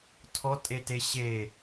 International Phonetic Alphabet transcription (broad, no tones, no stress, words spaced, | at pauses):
tʰɔtʼete ɕe